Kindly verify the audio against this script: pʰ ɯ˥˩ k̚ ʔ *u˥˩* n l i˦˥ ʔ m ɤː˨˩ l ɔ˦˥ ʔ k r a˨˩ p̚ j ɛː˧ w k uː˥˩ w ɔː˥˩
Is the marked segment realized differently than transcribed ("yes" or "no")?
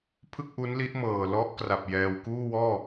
yes